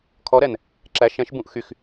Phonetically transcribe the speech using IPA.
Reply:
kʰ ɔ ɾ ɛ n | ǁ æ ʃ ɛ̃ ʃ b ũ ʔ x y x

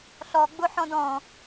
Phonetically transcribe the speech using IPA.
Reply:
ɬ ɔ ɡ͡b ʊ ħ ɔ̃ d ɔ̃

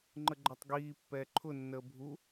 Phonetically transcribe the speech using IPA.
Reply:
ŋ͡ǃ ə ɡ͡ǃ æ tˤ ɡ iː pː ɛː ǃʰ ʊ nː əː bʱ u

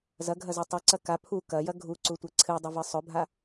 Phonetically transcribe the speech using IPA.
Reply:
z ɐ ɡʱ ɐ z u tˤ ɵ ǀ ɐ k a pʰ u k ɐ j ɐ ɡʱ u ǀ u tʷ e ǀʰ ɨ dˤ ɨ v ɨ sˤ ɵ bʱ a

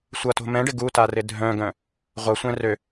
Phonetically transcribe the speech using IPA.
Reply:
sʷ ʌ t o̤ m ɛ̃ ɖ ɪ ɡ u t a r ɪ dʱ œ̃ ɡ œ̃ | ʁʷ ʌ sʷ ɛ̃ r ø

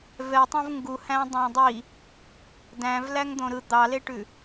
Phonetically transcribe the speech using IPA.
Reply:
v ɛ tˤ õ v ŋ ɡ u h æ̃ dˤ æ̃ dˤ i | d æ̃ v l æ ŋ d̪ õ ɾ ɯ d̪ ɑ l e ʈ ʉ

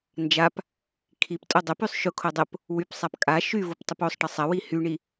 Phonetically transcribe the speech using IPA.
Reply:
n d͡ʒ a p | kʰ i p tʼ o dˤ ə p y sˤ ʃ ʊ kʰ o dˤ ə p | w y p sˤ a p kʼ a ʃ y v ʊ p tˤ ʊ p o sˤ ʈ ə sˤ ɐ w i h y ɳ i

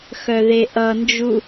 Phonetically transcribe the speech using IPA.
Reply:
x œ ð e ʔ ʌ n d͡ʒ u

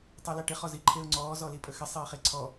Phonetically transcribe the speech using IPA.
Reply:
tˤ i l a ʈ ɪ χ ɔ z i ǃʰ e ʊ̯ ŋ͡ǀ ɔː z ɔ l i pʼ ə x ɪ sˤ eː χ e ǀʰ ɔ

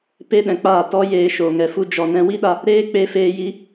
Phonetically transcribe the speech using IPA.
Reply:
p e˦ ɗ ɛ̃˨ k͡p aː˦˨ t ɔ˦ j eː˧ ʃ oː˨ ŋ ɛ˧ f u˦ d͡ʒ ɔ˧ n ɛ̃˦ w i˦ ɗ a˧ | ɾ eː˦ k͡p e˧ f eː˧ j i˦

